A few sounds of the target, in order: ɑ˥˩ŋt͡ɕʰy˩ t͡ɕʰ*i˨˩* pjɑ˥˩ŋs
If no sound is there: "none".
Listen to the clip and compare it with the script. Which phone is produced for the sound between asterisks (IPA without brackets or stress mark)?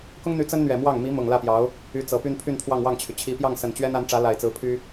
i˧˥